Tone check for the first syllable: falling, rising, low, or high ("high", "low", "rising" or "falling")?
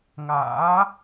rising